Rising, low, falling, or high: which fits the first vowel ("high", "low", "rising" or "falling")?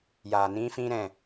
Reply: low